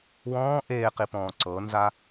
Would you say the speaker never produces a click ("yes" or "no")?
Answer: no